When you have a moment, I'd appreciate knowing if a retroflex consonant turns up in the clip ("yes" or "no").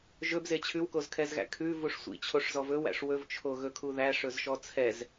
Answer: yes